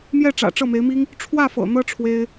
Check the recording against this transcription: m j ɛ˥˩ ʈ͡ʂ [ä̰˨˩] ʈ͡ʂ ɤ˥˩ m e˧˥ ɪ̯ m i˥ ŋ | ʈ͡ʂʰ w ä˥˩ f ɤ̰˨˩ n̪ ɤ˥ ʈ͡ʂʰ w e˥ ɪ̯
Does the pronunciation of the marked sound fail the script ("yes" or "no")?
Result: no